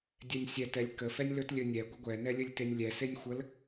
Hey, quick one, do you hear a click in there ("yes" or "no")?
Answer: no